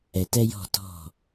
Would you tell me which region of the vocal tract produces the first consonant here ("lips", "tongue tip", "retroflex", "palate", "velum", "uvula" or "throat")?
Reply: tongue tip